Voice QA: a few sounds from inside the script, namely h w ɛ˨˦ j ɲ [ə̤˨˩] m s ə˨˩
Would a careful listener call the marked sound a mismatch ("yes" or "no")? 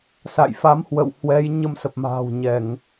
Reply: yes